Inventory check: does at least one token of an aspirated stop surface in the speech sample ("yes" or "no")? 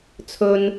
yes